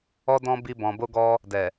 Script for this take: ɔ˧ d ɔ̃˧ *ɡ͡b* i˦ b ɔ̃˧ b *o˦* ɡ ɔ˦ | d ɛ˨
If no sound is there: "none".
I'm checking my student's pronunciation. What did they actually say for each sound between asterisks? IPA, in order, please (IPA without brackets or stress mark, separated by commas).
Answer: b, o˦